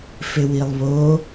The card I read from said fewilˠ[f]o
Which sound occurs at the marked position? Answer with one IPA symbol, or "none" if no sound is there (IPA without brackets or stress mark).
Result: β